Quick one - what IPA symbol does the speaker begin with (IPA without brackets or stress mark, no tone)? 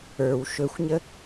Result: ə˞